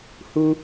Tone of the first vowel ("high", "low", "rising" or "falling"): high